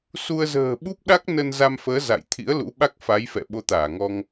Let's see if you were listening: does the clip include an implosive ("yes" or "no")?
yes